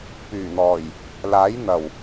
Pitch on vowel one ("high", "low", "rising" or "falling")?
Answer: low